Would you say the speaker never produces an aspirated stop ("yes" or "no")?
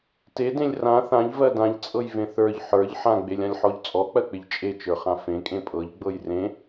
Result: yes